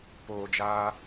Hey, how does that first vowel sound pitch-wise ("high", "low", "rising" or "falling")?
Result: low